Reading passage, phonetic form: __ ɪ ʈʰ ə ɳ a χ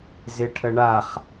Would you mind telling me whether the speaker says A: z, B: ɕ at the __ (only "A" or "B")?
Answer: A